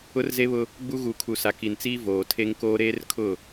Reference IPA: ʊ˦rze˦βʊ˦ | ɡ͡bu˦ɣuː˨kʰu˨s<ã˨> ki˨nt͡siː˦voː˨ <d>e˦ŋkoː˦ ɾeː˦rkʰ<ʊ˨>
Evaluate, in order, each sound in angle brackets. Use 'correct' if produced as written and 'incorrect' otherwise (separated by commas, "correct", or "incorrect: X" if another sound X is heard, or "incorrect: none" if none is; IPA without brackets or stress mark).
incorrect: a˨, incorrect: tʰ, incorrect: ʊ˦˨